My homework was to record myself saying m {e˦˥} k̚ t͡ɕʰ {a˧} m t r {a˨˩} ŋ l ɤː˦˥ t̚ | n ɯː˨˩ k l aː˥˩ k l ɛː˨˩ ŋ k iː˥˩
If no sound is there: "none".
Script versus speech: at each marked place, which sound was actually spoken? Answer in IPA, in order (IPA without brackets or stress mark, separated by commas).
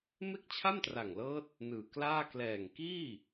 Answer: e˥˩, a˥˩, a˨˩